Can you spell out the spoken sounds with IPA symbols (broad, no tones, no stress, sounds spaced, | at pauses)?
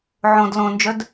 ʕ õ d l õ n d͡ʒ œ d